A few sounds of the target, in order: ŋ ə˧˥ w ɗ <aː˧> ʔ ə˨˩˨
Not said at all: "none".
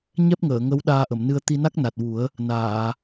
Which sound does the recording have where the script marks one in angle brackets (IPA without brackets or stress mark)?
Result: aː˧